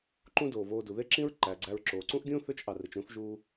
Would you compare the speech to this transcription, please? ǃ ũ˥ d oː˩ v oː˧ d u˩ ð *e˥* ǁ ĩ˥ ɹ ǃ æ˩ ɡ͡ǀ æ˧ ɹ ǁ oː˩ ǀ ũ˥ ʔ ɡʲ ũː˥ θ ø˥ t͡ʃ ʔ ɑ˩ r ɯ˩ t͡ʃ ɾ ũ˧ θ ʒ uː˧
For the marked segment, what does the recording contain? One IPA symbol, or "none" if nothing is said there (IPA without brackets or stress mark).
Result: e˥